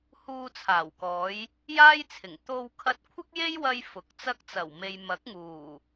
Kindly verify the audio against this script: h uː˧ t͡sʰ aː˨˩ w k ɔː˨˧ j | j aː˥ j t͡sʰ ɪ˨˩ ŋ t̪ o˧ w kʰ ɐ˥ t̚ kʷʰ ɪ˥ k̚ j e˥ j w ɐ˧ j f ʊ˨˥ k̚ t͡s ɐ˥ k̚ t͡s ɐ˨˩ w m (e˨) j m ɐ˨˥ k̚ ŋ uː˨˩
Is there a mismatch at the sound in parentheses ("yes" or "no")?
no